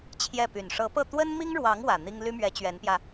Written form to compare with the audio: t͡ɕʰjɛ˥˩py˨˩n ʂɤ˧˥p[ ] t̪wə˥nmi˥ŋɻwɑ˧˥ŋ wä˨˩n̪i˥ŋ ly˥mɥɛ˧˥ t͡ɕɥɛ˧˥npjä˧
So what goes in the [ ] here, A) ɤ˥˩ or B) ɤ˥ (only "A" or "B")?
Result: A